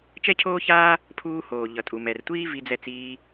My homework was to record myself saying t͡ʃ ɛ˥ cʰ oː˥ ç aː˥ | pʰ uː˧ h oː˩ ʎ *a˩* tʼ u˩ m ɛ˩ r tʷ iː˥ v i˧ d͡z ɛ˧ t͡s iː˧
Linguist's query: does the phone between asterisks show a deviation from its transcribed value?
yes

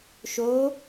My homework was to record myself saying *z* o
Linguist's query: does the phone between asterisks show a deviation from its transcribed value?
yes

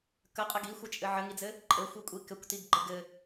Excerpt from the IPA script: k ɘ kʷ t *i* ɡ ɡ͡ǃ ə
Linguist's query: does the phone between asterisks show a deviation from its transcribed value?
no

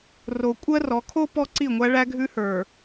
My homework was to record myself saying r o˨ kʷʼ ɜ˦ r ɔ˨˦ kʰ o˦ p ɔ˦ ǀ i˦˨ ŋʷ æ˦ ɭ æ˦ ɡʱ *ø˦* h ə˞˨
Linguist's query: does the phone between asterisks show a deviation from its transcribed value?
yes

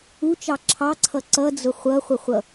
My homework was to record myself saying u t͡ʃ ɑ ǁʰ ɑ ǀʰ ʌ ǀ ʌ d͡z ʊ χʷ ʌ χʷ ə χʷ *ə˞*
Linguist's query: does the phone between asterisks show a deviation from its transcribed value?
yes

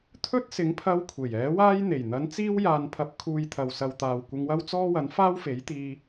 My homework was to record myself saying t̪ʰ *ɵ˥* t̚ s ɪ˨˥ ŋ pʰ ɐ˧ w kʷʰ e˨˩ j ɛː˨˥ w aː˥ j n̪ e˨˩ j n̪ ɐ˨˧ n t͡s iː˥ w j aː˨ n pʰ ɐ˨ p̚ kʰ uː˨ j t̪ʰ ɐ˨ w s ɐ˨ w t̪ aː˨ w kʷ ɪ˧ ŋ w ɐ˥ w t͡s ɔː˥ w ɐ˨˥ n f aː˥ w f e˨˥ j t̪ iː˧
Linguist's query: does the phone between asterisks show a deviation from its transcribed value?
no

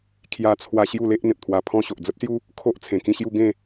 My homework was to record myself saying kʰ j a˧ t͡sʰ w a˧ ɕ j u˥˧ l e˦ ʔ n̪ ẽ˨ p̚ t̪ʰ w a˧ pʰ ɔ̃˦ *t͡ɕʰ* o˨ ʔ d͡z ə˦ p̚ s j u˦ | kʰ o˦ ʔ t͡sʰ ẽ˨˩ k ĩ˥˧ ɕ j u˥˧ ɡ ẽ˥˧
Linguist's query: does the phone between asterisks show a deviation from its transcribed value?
yes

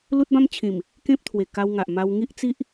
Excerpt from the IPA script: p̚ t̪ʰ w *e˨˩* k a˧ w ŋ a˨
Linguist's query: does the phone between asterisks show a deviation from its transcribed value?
no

